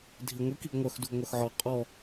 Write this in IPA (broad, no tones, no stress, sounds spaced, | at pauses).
dʱ i ŋʷ i k i ɡ ŋʷ œ x d u ɡ ŋʷ œ x ʕ ɔ qʼ ɔ